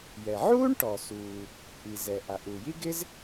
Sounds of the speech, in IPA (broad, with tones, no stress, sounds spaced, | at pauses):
j ɛ˩ ʕ uː˥ ɳ ʈ ɔ˩ s uː˩ | ʔ i˩ z ɛ˩ ʔ a˩ ʔ u˩ j i˥ ɡ ɪ˥ z